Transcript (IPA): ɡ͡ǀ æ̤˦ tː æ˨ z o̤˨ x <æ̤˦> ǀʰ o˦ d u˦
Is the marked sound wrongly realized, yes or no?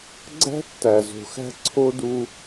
no